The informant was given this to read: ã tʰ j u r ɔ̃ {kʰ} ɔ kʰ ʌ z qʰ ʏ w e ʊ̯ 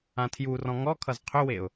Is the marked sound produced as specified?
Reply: no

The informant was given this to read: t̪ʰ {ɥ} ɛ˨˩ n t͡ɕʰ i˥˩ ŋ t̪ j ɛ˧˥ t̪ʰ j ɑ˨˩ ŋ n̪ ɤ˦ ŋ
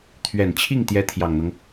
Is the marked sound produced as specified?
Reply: yes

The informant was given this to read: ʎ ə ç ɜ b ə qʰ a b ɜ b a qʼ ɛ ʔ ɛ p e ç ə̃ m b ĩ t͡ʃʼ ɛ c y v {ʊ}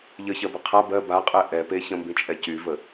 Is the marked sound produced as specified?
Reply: no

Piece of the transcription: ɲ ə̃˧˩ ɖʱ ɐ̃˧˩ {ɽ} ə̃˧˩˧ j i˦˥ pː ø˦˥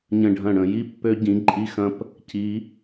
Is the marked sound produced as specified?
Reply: yes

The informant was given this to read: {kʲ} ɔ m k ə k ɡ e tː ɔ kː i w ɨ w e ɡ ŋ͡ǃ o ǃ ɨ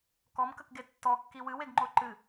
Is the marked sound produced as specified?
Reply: no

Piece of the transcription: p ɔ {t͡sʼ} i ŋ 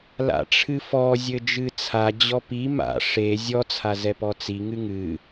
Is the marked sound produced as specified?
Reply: no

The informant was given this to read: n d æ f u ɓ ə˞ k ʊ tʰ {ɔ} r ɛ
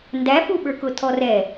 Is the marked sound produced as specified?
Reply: yes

